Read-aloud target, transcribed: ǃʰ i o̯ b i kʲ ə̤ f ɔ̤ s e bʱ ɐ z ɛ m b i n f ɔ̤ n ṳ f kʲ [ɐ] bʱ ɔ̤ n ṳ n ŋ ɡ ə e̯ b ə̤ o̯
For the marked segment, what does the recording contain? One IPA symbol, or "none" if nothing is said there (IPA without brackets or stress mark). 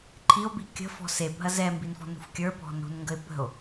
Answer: ə˞